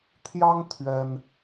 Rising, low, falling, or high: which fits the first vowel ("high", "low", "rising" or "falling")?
high